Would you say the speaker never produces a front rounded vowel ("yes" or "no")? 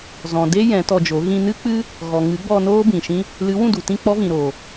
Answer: yes